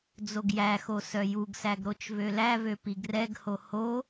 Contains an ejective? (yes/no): no